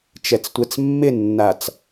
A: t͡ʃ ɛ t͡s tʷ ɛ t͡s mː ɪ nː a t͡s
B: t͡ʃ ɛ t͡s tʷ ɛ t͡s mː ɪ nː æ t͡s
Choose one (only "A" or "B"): A